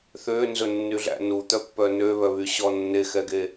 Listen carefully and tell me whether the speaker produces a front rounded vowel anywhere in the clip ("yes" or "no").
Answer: yes